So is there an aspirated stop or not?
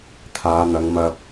yes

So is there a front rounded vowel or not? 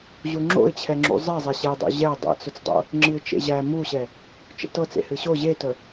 no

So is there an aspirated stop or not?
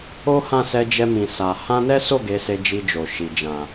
no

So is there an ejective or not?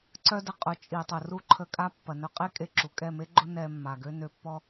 yes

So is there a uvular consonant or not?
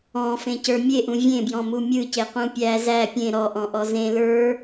yes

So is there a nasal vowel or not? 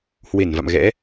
no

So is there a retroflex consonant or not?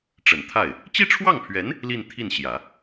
yes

